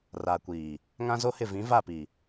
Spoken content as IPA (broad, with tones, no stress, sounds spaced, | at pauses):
r aː˨ kʷ iː˨ | ŋ ã˦ z o˦ h ɪ˦˨ v ĩ˨˦ v a˦˨ p i˨